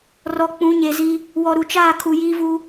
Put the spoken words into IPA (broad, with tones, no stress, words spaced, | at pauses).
rɔ˨k͡pũ˨˦ɲe˨zi˦ | wɔ˨ɾu˨t͡ʃaː˦˨ kʰu˨jiː˦vu˦